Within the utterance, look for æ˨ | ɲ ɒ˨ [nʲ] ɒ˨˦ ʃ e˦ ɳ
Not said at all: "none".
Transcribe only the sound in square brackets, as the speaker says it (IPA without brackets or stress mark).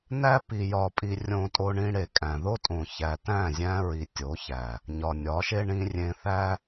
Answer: nʲ